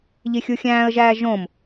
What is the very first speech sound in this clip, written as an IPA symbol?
ʎ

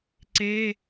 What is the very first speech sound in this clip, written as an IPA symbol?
ǀ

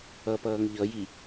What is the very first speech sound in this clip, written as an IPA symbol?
ʌ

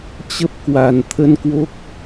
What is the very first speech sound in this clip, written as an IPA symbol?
t͡ɕ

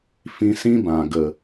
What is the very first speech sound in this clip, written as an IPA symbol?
f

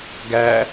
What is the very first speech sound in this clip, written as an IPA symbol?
ɡ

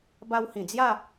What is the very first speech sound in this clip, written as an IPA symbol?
b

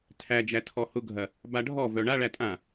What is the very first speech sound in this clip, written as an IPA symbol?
tʰ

